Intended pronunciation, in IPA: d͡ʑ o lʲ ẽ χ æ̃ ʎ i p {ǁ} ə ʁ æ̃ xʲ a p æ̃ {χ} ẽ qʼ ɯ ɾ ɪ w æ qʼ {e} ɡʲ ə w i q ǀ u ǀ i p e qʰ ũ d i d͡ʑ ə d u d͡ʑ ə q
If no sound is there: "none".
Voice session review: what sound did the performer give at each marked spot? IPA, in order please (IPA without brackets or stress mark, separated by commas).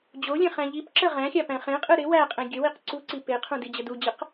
ǁ, χ, ẽ